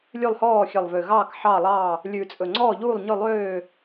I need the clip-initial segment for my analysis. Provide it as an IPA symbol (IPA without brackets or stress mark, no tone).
lʲ